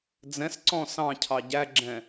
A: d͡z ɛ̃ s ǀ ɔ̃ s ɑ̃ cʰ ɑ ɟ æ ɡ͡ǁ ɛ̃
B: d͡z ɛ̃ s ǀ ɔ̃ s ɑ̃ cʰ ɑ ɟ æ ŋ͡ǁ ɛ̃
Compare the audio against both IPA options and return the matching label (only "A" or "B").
A